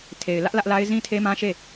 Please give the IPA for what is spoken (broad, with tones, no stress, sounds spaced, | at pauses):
tʰ e˨ ɪ̯ l ä˦ ʔ l ä˦ ʔ l a˦ ɪ̯ z ĩ˦ tʰ e˦ m ã˦ ʃ e˦˨